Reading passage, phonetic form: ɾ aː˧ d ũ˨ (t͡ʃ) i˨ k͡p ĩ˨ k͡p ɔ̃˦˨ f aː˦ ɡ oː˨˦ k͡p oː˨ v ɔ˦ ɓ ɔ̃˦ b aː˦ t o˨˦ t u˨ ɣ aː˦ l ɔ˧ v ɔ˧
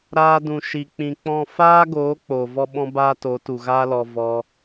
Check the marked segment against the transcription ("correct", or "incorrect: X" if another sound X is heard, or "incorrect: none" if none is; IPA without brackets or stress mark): incorrect: ʃ